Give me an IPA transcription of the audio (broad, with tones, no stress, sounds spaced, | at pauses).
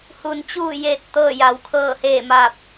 h u˩˧ n t͡ɕ uː˧˩ j e˧˩ t̚ t̪ ɤː˧˩ j a˩˧ w kʰ ɤː˧˩ h eː˧˩ m aː˧˩ p̚